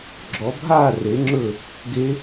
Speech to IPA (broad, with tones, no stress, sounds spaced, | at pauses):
ɡ͡ǁ ɔ˨˦ bʱ aː˥˨ r e˨˦ ŋ͡ǁ ɵ˥˨ | ɡ e˦˥